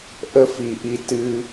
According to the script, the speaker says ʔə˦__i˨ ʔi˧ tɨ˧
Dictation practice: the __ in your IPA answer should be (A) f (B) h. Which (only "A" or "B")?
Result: A